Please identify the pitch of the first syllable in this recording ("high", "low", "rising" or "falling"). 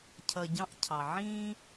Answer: low